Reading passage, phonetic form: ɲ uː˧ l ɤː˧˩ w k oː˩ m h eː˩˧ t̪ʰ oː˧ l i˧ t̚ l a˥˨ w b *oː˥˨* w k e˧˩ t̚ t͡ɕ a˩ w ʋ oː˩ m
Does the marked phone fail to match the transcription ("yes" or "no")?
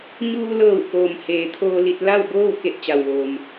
no